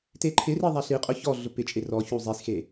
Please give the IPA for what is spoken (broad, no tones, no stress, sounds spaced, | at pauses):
t e ǃʰ ɪ r i ðˤ a ɬ i qʼ ʊ ç ɔ ɮ ʊ p ɪ t͡ʃʼ e r ɔ ç u zˤ i s x e